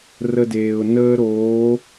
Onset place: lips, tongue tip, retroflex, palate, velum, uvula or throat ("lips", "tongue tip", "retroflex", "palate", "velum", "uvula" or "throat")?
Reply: tongue tip